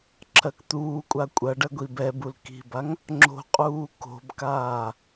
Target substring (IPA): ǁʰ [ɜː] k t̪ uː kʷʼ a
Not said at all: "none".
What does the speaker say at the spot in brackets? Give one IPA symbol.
ɜ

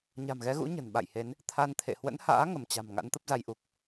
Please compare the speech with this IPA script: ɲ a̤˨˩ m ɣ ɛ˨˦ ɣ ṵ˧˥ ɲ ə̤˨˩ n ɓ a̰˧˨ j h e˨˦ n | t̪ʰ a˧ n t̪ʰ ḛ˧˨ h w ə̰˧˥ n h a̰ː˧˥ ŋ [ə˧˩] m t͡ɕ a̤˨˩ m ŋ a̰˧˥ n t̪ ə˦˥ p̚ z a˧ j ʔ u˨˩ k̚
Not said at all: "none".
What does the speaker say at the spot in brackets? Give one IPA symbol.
ə˧˩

